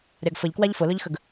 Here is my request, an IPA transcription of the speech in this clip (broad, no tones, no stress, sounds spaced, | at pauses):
ɾʲ a ɡ f ə ʎ k w a ʎ f ʊ l ʊ ʎ x ə ɡ